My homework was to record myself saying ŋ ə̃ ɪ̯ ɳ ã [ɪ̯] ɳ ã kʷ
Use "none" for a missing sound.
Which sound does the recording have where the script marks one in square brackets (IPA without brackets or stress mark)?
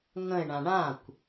none